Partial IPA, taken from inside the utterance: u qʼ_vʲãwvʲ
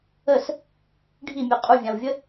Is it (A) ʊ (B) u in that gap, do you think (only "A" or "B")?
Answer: B